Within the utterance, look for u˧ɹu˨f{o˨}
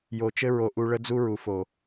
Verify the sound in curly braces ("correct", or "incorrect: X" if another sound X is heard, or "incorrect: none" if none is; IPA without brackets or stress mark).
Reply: correct